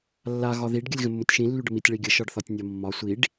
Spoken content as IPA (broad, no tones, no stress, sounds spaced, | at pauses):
lː a ɣ ɒ ð i ɖ ɡʲ ə lʲ ɣ ə̃ mː ʊ tʲ ʃ ĩ lː y ɖ ə m i tʲ ɭ i ɡʲ ə ʃ ɒ ɖ θ ɒ tʲ nʲ ɒ mː ɒ sʷ i ɖ